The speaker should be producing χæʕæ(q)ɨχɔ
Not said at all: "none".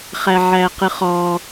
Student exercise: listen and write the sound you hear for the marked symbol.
q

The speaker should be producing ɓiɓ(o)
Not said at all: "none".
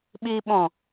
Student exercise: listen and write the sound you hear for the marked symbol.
õ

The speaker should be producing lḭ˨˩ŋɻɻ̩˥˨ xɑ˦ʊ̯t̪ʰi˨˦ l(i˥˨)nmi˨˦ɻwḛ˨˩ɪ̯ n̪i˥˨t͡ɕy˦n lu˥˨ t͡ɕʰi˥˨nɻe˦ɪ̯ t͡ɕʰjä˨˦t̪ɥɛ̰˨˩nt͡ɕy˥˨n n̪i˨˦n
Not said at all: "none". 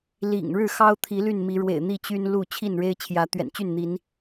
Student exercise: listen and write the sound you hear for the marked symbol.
y˥˨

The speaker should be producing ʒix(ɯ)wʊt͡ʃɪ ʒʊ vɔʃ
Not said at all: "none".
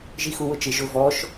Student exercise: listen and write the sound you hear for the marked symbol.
u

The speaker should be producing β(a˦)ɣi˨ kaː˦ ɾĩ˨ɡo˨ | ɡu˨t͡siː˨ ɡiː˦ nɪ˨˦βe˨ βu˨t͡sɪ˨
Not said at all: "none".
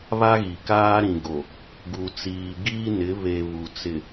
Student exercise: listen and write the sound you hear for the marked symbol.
a˦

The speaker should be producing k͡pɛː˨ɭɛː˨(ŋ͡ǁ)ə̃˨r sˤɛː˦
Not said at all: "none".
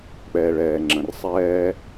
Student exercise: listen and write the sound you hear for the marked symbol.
ŋ͡ǁ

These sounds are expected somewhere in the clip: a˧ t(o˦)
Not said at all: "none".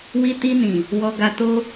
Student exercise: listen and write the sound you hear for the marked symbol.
o˧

